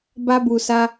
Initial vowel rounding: unrounded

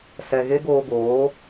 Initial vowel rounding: unrounded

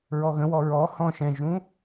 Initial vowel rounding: rounded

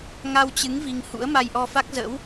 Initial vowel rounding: unrounded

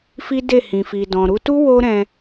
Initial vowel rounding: unrounded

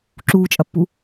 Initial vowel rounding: rounded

